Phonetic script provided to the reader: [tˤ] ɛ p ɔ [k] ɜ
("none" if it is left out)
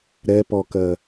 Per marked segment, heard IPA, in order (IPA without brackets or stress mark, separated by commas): ɾ, k